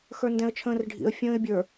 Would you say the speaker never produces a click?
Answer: yes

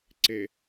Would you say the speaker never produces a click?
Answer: no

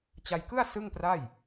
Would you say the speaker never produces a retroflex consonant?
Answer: yes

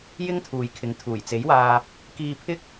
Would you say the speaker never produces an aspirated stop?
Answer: no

